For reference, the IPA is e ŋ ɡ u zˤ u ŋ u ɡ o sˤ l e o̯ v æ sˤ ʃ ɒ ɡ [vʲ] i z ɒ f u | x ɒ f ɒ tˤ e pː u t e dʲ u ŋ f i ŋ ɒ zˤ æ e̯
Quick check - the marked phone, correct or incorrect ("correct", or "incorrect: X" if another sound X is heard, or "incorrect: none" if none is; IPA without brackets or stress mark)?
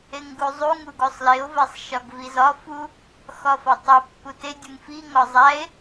incorrect: v